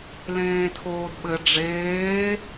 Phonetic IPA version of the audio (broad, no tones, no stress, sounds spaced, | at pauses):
l ẽː tʰ oː d ɓ ɘ ɖ͡ʐ eː